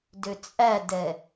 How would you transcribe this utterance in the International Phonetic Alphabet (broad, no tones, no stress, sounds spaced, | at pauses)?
d ø t͡sʼ æ d ɛ